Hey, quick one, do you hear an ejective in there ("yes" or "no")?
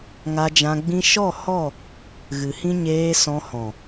no